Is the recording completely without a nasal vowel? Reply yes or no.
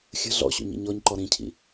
no